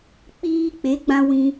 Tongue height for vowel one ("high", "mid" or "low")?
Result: high